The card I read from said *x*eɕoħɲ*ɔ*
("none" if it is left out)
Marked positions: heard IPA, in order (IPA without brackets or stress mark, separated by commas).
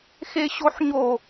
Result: x, o